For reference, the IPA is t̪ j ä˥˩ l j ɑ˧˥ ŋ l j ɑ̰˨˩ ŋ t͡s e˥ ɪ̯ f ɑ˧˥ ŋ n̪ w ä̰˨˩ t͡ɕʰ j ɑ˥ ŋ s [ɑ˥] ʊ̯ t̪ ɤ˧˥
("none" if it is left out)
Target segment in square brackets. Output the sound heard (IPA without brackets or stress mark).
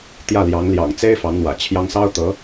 ɑ˥